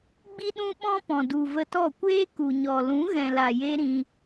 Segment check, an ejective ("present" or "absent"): absent